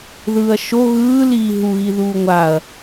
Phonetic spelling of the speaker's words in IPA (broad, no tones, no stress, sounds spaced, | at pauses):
ð ɯː ɐ̯ ʃ o ɣ ɯː l iː ɦ u ɣ i ð uː ŋʷ a ɐ̯